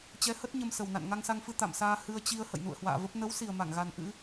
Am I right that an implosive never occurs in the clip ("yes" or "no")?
yes